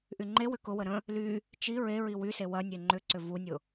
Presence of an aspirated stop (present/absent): absent